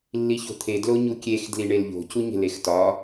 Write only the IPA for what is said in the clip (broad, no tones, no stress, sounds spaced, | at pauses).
lː i ç o̤ t̪ʰ e d l o ɲ u kʲ e x d l i ɳ e l ʎ o̤ c u ɲ e̤ l e x t ɒ